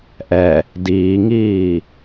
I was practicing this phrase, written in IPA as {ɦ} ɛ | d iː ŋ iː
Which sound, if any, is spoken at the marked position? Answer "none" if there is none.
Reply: ʔ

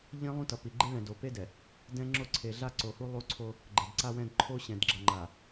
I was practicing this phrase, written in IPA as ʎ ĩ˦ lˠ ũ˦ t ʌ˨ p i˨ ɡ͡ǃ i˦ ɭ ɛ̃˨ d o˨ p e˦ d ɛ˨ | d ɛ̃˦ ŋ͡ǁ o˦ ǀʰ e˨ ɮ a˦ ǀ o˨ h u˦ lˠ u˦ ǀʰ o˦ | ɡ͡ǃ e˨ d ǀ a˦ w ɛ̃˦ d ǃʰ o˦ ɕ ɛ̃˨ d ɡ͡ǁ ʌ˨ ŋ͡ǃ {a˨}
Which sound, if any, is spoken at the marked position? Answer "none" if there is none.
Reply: a˨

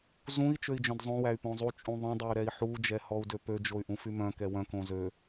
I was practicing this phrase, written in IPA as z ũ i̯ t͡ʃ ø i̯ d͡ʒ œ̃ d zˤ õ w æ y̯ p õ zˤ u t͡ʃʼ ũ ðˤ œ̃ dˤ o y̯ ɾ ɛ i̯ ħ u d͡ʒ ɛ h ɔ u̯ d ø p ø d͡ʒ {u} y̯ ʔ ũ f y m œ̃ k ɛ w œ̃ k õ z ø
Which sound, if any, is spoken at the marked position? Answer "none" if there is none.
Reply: o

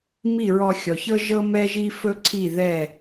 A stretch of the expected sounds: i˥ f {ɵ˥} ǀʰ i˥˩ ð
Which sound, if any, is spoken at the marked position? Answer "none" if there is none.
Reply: ɵ˥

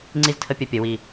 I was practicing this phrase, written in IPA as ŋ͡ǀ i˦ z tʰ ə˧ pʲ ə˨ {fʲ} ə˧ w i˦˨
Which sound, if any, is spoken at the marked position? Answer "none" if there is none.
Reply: pʲ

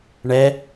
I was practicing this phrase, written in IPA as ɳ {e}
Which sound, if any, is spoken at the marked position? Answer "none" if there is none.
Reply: ɛ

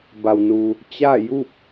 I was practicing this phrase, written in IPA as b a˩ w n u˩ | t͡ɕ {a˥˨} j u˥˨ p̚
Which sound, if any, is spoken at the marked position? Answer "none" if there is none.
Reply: a˥˨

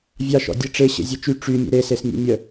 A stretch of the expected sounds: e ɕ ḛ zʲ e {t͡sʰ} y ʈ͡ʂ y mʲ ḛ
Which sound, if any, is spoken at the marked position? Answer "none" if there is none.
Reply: t͡ʃ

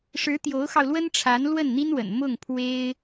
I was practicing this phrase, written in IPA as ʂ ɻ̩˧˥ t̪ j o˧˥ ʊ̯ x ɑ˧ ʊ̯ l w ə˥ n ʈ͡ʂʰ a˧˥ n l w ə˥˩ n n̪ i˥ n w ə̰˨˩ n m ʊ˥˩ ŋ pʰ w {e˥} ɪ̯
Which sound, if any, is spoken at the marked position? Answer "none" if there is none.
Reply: e˥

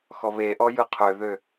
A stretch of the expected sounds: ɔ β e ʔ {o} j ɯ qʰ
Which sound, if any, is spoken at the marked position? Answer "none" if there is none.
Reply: ɔ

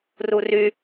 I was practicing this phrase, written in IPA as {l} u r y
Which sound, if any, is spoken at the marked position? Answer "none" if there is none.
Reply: r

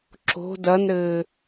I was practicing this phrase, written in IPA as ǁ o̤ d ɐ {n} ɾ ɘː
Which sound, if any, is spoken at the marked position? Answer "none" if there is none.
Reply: n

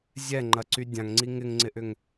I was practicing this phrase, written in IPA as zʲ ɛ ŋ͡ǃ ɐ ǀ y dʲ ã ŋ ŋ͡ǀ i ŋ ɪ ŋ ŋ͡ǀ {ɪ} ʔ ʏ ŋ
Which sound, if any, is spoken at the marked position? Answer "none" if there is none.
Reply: ɪ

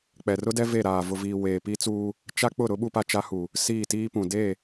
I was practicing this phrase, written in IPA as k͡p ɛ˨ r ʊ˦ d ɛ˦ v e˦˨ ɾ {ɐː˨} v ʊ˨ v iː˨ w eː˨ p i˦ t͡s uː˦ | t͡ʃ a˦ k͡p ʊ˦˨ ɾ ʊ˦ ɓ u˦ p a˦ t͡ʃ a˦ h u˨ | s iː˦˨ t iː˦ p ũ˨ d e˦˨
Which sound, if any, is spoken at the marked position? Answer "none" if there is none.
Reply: aː˨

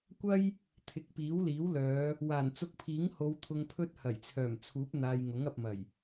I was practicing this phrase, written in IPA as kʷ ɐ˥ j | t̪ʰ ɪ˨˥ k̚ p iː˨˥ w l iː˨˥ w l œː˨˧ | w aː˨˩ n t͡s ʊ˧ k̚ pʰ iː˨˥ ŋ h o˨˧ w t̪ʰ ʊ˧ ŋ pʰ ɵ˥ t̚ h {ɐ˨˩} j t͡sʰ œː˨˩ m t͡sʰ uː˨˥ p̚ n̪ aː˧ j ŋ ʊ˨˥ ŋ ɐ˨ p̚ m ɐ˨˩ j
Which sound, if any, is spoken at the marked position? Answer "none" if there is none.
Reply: ɐ˨˩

